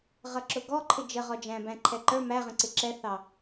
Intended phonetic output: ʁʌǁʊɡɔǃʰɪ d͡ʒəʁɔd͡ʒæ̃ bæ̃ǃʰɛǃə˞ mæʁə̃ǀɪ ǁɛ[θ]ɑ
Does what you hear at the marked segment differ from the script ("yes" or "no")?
no